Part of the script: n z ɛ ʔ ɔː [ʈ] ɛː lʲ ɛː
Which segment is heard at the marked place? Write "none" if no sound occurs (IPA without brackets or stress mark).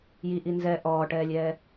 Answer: ʈ